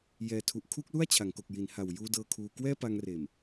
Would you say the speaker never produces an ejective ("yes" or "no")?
yes